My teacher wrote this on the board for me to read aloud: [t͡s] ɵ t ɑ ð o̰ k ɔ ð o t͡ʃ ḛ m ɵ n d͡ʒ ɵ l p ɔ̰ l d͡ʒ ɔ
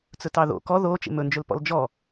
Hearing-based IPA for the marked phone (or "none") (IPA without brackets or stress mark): t͡s